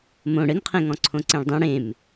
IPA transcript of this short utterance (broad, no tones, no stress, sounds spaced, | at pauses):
m õ ɽ ɘ n qʰ ẽ ŋ ɔ̃ ǀʰ õ ǀ ẽ ɭ dˤ ũ ɽ ẽ m